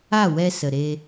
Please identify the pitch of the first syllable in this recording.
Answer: falling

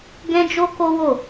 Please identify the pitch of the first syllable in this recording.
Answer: high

